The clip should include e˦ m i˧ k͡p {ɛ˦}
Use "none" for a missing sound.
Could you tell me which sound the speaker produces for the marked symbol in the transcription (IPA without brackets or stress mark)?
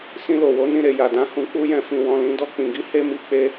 e˦